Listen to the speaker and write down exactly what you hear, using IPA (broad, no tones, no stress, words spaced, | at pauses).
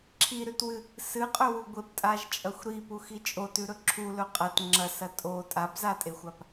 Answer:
ǁʰiɾʉtwɨ | sɨqʼɵwu ɡʷeptʼaʒt͡ʃʼɐxʷ ɾipuxi t͡ʃʼotʉɾɵ ǁʰulɵ qʼɐt ŋ͡ǁɐsɐ tʼo tʼabzatʼexʷap